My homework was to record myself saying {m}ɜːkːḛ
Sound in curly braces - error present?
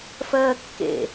yes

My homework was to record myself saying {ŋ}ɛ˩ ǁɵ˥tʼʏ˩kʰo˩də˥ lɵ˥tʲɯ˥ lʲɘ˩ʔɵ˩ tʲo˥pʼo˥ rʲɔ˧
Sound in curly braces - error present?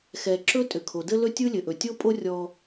yes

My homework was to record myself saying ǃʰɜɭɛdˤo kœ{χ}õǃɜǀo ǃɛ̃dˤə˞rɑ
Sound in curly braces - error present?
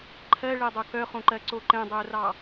no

